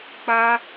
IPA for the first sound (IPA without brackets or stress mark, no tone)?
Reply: k͡p